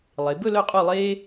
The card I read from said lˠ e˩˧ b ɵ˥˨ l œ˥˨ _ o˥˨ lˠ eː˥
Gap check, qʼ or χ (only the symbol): qʼ